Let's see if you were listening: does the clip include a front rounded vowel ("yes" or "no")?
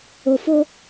no